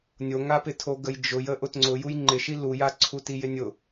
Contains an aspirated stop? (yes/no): yes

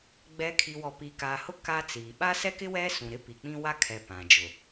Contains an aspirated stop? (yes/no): yes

